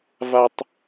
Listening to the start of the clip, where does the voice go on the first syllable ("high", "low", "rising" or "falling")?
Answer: high